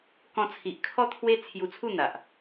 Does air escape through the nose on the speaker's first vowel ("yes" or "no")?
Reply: yes